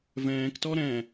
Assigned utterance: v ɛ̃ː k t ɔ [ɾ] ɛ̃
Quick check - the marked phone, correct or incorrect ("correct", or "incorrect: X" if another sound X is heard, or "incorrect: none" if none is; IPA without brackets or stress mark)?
correct